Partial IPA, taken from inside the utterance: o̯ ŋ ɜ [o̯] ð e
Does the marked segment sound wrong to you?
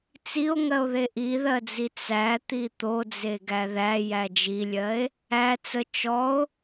no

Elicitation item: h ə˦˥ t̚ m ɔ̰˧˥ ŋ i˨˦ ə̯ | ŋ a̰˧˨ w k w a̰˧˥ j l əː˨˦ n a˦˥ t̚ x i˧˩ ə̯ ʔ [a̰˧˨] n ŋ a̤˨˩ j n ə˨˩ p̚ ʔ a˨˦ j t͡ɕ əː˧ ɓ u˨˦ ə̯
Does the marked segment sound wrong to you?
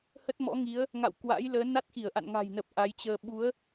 no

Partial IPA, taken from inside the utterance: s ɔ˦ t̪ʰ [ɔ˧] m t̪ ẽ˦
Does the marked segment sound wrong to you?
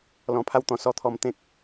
no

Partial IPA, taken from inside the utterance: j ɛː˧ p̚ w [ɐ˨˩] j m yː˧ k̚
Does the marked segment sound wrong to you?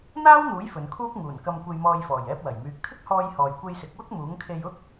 no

